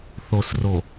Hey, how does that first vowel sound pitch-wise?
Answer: low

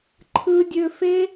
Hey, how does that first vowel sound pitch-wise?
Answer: low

